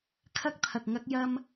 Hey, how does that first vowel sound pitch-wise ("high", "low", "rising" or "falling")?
high